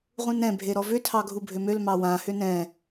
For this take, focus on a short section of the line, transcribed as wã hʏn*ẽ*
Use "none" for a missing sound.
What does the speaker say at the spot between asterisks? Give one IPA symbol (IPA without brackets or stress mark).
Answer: ɛ̃